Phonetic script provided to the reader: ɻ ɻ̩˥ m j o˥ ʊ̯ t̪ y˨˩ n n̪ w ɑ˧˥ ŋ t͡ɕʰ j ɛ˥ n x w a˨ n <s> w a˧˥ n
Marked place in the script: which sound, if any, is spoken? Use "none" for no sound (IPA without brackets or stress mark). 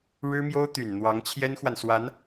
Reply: s